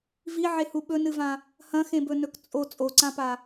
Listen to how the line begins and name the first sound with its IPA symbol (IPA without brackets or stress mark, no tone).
v